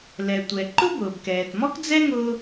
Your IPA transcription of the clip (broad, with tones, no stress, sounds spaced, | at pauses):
l ɛ˩ tʷ ɛ˩ ǃ ʊ˥ b ʊː˩ b k ɛː˩ t m ɔ˥ k d͡z ɛ˥ ŋ ʊː˥